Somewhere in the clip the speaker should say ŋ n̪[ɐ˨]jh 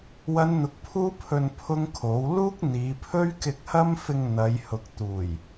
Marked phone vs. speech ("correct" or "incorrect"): incorrect